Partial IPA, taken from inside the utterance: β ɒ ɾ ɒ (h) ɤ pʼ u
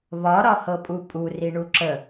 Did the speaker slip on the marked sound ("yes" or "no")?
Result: no